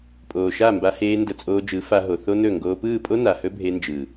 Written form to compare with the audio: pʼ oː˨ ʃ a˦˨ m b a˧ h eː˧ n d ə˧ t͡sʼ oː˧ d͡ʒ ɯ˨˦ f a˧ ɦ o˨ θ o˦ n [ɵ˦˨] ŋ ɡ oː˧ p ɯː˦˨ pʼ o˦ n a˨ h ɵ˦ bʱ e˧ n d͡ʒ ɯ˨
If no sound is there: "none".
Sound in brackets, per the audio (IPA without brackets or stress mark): ɵ˦˨